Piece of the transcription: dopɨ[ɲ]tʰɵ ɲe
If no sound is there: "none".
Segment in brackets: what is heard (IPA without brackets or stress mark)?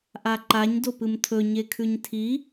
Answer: m